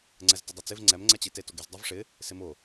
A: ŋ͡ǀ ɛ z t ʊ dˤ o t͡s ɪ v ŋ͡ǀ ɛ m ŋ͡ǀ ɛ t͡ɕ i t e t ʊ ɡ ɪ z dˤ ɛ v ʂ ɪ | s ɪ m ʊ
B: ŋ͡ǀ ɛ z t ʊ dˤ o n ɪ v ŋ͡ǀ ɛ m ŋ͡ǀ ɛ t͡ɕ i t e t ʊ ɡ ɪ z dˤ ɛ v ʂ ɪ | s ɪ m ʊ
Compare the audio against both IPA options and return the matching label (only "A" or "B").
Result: A